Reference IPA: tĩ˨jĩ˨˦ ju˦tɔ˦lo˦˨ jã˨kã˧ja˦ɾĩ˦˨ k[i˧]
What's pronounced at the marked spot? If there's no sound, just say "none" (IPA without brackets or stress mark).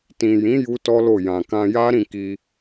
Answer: i˧